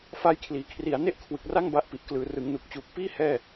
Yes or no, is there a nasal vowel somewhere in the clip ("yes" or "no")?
no